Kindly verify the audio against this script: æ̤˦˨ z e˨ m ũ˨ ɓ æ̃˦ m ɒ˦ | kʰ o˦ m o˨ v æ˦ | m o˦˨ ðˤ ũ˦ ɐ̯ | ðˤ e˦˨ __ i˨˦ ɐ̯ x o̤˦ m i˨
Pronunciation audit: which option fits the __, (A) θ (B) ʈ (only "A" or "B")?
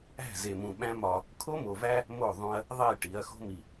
B